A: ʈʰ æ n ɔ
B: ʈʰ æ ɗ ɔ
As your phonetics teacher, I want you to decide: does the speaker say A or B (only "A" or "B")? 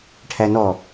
A